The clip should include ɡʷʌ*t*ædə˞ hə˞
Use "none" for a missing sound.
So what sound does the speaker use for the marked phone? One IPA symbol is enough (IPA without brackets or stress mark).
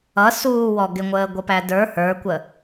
p